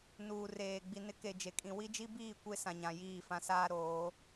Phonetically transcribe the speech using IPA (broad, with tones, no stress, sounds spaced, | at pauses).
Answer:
n uː˨ r eː˨ ɡ͡b i˨ n ɪ˦ k e˨ d͡ʒ e˨ kʼ ĩ˨ w i˦ d͡ʒ i˦ b iː˦˨ kʷ e˦ s ã˨ ɲ ã˨ j iː˦˨ f ã˦ s aː˦ ɾ oː˨˦